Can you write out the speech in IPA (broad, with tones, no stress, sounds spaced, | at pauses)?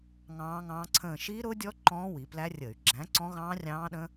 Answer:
ŋ ɑ̃ː˦˥ ŋ ɑ̃ː˦˥ ǀʰ ə̃ː˥˧ ʃ i˦˥ ɾ ʊ˦˥ dʲ ɔ˦˥ ǃ ɔ̃ː˦˥ w i˩˧ p l æ˦˥ rʲ ə˧˩˧ y̯ ɡ͡ǁ æ̃˨˥ ǀ ɔ̃˦˥ ɣ ɑ̃ː˦˥ rʲ ɑ̃ː˦˥ ɗ ə̃˦˥